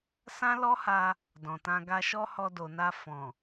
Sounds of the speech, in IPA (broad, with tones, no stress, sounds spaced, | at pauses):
s ã˦ l ɔ˦ h a˧ | d ɔ̃˨ t ã˧ ɡ a˧ ʃ ɔ˦ h ɔ˧ d o˨ n a˧ f ɔ̃˨